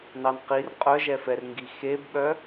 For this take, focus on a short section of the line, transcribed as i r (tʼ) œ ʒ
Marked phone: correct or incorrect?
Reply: incorrect